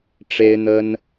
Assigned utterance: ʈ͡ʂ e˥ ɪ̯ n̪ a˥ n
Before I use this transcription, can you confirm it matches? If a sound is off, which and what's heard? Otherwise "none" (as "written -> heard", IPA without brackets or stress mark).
a˥ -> ə˥